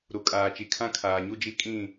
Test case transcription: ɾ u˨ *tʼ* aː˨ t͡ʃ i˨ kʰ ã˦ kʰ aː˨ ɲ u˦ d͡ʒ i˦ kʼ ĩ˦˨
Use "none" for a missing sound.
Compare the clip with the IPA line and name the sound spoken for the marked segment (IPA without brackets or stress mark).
kʼ